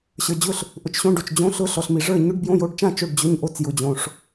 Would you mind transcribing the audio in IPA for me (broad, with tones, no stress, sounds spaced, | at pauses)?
ɕ ə˞˨ d͡ʑ ʊ˥˩ ɬ | ʔ ʊ˨ t͡ʃ ɕ õ˧˥˧ ɖ o˨ t͡ʃ d͡ʑ õ˧˥˧ ɬ ʊ˧˥˧ ɬ ɔ˨ ɬ m i˨ ʐ ə˞˥˩ ɲ ʊ˧˥˧ ɖ b j õ˧˥˧ j o˧˥˧ ɖ t͡ʃ ã˥˩ t͡ʃ o˥˩ ɖ d͡ʑ ɵ˧˥˧ ɲ ʔ o˥˩ t͡s j ʊ˨ d͡ʑ õ˨ ʂ